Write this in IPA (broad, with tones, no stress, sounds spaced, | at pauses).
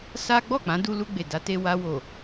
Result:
s a˦ ɡ͡b ɔ˦˨ k͡p ã˨˦ d u˧ l u˧ ɡ͡b e˨ d a˨˦ t e˧ w a˧ w o˨